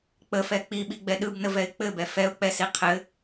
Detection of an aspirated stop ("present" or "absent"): present